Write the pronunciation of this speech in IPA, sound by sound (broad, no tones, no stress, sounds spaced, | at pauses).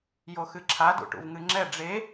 j o x ɨ ǁʰ a d ṵ ʈ ṵ v ŋ ɨ ŋ͡ǁ ɛ ɖ͡ʐ e